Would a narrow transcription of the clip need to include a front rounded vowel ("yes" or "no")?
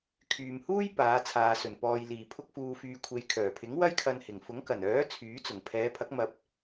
yes